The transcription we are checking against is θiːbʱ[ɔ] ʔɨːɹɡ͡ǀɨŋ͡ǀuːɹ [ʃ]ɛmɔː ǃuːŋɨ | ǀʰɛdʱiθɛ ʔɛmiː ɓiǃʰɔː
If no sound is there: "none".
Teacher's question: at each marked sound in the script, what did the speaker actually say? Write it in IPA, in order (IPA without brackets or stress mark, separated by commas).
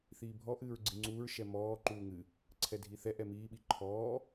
ɔ, ʃ